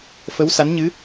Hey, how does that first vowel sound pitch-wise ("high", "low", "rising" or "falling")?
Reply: rising